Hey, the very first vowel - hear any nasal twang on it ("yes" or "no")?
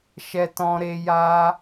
no